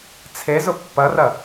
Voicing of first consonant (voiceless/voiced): voiceless